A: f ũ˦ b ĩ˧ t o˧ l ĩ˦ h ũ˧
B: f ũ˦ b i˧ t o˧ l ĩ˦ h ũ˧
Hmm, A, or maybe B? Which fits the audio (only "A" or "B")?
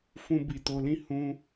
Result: B